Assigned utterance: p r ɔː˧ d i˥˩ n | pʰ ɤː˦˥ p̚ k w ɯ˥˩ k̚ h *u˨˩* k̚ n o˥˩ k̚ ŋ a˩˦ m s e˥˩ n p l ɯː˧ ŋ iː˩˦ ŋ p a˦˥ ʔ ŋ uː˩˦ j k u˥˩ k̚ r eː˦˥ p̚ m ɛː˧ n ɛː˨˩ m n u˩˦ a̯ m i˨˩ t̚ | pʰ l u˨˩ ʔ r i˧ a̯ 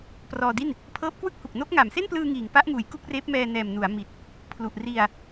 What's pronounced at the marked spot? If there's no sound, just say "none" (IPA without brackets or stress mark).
u˨˩